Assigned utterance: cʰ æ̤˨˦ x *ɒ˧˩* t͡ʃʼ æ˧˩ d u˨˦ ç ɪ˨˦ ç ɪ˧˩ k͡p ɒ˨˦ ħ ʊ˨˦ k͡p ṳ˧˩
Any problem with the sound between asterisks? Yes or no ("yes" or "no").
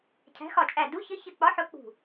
no